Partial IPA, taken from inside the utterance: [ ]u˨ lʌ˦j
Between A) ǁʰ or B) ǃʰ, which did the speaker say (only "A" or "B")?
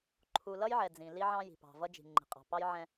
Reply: B